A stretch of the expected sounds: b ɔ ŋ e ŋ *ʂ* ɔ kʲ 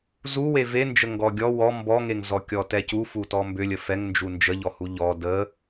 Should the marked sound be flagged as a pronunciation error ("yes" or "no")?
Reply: yes